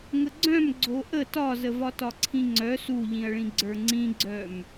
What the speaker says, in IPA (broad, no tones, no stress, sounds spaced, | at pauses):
ŋ ə ɡ͡ǀ œ̃ m ɡ͡ǀ o ʔ ə t ɒ z ə v ɒ t ɒ ǀʰ ĩ ŋ͡ǀ œ s u ʎ ĩ ɐ̯ ɭ ĩ ɡ͡ǀ ə˞ ŋ͡ǀ ĩ ɡ͡ǀ œ m